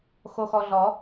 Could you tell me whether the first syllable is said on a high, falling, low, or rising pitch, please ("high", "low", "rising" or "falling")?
low